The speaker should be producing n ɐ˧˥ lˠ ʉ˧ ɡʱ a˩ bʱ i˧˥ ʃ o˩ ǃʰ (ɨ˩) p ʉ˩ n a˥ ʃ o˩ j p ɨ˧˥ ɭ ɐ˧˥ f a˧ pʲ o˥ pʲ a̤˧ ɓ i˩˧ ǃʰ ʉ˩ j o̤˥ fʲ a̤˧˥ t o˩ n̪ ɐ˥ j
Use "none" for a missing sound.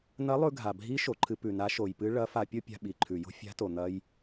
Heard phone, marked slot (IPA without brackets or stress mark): ɨ˧